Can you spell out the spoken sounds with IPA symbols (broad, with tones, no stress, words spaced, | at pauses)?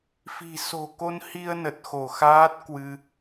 fi̤˨˩ so̤˨˩ko˧nhi˧ə̯ nə˨˩t̚xo˧˩xaː˦˥t̚ kwɨ˧